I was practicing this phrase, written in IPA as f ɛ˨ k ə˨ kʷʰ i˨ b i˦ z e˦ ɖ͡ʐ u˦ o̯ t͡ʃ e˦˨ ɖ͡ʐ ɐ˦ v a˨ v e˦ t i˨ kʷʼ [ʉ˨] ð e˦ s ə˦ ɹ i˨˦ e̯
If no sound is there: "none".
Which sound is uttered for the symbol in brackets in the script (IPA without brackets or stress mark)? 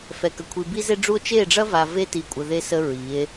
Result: ə˨